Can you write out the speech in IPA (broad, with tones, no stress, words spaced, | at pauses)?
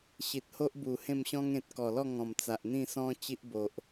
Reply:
ɕi˨t̚ho˦ʔbu˨˩ hẽ˥˧mɕɔ̃˦ŋẽ˨t̚ kɔ˨˩lɔ˥˧ŋɔ̃˨˩m t͡sa˨ʔn̪ĩ˥˧sɔ̃˦ t͡ɕi˦ʔbo˨ʔ